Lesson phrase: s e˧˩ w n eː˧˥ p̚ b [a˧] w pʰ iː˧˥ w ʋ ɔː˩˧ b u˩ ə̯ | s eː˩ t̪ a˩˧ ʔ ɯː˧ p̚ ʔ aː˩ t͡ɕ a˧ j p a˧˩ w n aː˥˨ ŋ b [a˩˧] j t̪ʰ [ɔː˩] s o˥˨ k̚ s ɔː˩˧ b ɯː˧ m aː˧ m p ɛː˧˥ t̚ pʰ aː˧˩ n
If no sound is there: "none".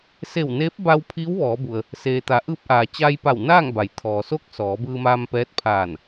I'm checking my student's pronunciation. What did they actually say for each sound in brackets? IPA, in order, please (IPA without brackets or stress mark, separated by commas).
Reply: a˧, a˩˧, ɔː˩